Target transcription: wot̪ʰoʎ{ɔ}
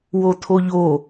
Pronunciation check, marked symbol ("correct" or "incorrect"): incorrect